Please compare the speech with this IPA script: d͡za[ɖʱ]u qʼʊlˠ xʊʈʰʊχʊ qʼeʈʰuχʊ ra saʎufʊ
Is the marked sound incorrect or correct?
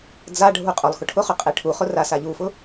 correct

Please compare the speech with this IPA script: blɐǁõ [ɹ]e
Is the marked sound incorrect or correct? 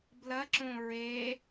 correct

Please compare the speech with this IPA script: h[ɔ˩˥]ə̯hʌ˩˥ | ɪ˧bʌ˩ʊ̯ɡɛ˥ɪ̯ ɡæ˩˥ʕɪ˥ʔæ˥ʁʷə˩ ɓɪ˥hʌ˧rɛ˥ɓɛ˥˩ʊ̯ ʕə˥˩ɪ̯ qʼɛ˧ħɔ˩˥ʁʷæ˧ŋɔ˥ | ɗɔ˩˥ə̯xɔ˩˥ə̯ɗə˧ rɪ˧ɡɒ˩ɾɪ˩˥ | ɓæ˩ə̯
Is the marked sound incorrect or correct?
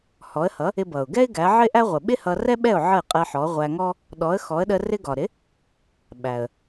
correct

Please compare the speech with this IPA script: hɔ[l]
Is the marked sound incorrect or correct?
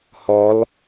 correct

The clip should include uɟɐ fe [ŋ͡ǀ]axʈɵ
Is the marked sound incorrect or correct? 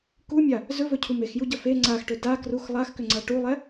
correct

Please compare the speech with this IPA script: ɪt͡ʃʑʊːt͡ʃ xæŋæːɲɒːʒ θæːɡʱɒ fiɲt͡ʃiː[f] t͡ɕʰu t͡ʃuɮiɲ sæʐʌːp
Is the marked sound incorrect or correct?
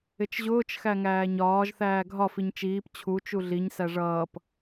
incorrect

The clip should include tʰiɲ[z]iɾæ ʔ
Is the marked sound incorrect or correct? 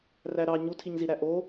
correct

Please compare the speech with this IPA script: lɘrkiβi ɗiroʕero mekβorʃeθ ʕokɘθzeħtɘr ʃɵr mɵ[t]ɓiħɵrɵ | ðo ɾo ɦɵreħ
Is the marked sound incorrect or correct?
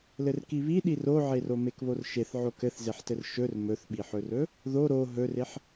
incorrect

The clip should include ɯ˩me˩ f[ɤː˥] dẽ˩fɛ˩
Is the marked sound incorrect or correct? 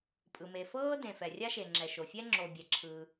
correct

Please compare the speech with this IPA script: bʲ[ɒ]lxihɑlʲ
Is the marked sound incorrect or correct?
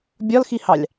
correct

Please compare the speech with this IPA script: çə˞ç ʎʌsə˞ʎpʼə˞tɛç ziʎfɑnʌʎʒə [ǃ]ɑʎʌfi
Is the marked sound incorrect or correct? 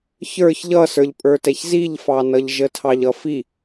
incorrect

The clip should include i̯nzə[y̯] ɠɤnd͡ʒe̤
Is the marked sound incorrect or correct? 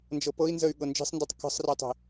correct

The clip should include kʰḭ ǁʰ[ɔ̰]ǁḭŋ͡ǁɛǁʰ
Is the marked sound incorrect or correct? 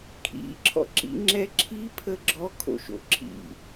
correct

